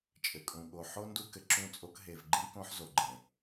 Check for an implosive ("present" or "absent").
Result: present